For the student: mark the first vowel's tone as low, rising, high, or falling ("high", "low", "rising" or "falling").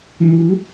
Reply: rising